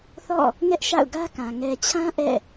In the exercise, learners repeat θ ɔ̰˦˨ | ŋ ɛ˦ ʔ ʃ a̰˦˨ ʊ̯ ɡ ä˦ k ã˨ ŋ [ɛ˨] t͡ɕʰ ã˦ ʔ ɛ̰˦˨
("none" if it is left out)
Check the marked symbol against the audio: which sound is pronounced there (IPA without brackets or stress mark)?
ɛ˨